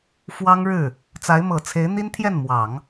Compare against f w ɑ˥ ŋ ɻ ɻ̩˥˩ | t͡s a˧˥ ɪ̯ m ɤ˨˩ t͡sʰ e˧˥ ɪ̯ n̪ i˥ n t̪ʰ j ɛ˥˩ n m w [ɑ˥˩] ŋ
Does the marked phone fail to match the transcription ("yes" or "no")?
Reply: yes